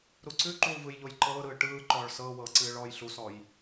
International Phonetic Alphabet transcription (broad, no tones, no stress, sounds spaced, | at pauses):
ɾ u ǀ ʉ ǃ uː v ɯ j ʎ o j ǃ ɤː ɾ ɯː ʈ ɯː ǃ ɔː ɭ s ɤː w ɤː ǀ ɨː ɭ ɔː j ɬ u s ɔ j